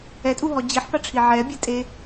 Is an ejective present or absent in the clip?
present